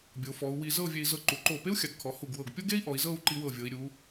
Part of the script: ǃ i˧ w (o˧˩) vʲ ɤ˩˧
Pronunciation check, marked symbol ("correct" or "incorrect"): incorrect